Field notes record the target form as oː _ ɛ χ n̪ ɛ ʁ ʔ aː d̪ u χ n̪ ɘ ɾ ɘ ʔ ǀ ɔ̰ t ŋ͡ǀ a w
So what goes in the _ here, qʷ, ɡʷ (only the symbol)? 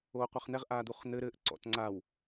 qʷ